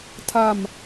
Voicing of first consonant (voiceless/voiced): voiceless